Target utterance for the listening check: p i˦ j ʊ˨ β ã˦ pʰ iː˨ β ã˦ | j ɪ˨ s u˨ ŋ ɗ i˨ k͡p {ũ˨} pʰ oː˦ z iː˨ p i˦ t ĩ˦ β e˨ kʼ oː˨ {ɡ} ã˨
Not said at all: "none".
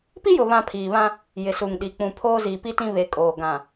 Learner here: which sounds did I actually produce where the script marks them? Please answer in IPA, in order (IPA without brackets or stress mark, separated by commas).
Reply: ũ˨, ɡ